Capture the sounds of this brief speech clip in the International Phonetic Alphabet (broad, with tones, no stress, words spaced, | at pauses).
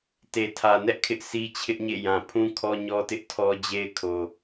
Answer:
te˨tʰä˨ nɛ˦ʔkʰɪ˦ʔ si˦t͡ɕʰɪ˦ʔɲḛ˦˨jã˨ pʰũ˦kʰɔ˦ɲɔ˦tɪ˦ʔ tʰɔ˦ d͡ʑe˦ɪ̯kʰo˨